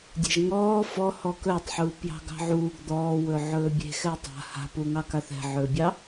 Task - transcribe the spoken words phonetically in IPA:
dʲe̤ʒŋɔː fɔhɔ kɵːtˤħuːpjɑ̤ ɡɑ̤ʕuːɡ d̪ɔːwɵ ʕɵːbʲe̤ xɛtˤa̤ ha̤puŋɑkaθ ɛ̤ʕɵːbʲɑ

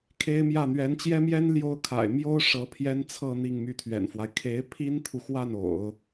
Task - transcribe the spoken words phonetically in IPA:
kʰe˥ɪ̯mjä˥˩ n̪ɥɛ˧˥nt͡ɕjɛ˥mjɛ˥n ljo˥ʊ̯kʰa̰˨˩ɪ̯ mjo˥ʊ̯ ʂɤ˧˥ pʰjɛ˥nt͡sʰɤ˥˧ n̪i˥˧ŋmy˥˩t̪ʰɥɛ̰˨˩nfwa˦ɪ̯ kʰe˧˥ɪ̯pʰi˥nt̪ʰu˨xwa˥˩n o̰˨˩˦ʊ̯

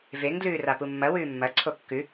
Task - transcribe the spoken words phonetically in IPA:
veŋ dlʉːrapumːɐ wʉːmːɐ ǀʰokːʉ

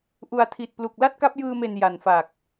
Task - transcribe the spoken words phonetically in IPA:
ʔu˧a̯ tʰi˨˩t̚plu˨˩k̚ la˥˩t̚ka˦˥p̚jɯː˧me˨˩n ja˨˩nfa˨˩k̚

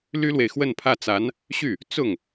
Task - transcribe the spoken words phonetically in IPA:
ly˥lwe˨ɪ̯xwə˥˧npʰä˥˩ t͡sa˧˥n | ɕy˥˩ | t͡sʊ˥˩ŋ

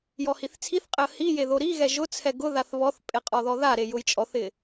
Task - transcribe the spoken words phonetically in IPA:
jɔhiθt͡sʰiθqʼɪə̯ hije ðoɾiɣɛ ʒʊt͡sʰɛ ɡʊðaθ βɔθpʼe qʼɔðɔðaɾe jʊjt͡ʃʼɔθɪ

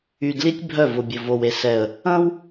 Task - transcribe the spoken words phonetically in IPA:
y˨dli˦tʲ bʱœ˦˨vʊ˨bʲʊ˨ vo˨we˨sɛ˨ə̯ | ɐ̃˦w

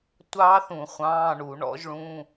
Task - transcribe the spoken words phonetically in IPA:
tʷɑː˦˥θũ˧˩˧ χʷɑ̃ː˧˥˧ɳu˧˩˧ɳɔ̰˦˥ʒɭũ˧˥˧

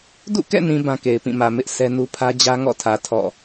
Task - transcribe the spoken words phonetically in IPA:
dṵ˦˨kɛ̰˦˨nĩ˨ bã˦ke˨ɪ̯pĩ˦˨mä˨ mɪ˦ʔ sɛ˦nu˦ pʰä˦d͡ʑä˦ŋɔ̰˦˨tʰä˨ tʰɔ̰˦˨

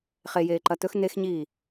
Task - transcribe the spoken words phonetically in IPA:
χejeː ǃɐt̪ɵx nexɲiː

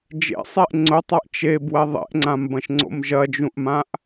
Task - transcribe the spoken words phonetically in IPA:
d͡ʒḛsˤeʔ ŋ͡ǀʊtˤaʔ t͡ʃebwɛ ðˤḛʔŋ͡ǀãmbɐ̃ʃŋ͡ǀo̰m ʒɐd͡ʒũʔmãʔ

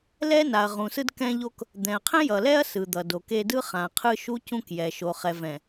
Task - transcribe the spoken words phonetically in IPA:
lɛ˦na˨ɐ̯ ʁũ˨sɯ˦d kɛ̃˦ʎo˦k | d̪ɛ̃˨ɐ̯qʰɛ̃˦jʌ˨lɛ˦ɐ̯ sɯ˨ d̪ʌ˨do˨ke˦ dɯ˦ χã˨qʰɯ˦ ʃu˦cũ˦kjɛ˨ʃo˨ χɛ˨vɛ̃˨

